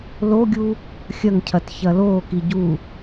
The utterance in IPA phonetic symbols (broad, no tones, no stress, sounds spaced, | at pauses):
l o ɡʲ u | xʲ ɐ ŋ cʰ ɐ t ç ɐ l oː k i ɟ u